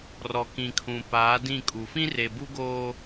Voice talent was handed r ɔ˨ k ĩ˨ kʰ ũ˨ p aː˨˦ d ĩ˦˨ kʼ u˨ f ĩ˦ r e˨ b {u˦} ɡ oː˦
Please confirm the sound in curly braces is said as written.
yes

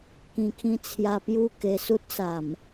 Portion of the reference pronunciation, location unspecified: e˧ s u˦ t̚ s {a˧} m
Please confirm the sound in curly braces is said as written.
no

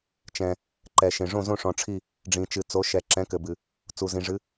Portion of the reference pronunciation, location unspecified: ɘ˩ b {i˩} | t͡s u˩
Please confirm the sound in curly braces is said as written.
no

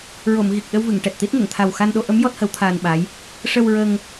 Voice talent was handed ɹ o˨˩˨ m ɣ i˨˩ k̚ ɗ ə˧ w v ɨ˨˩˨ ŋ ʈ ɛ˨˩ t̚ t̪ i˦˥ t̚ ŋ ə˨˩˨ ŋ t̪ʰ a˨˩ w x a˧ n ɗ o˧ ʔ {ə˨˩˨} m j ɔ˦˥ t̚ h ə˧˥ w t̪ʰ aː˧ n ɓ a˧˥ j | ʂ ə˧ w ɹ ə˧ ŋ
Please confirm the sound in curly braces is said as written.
no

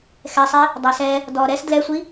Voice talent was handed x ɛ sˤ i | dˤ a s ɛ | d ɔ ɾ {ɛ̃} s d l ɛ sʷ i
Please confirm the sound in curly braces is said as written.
no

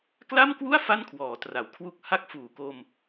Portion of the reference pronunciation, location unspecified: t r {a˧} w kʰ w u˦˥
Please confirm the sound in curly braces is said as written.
no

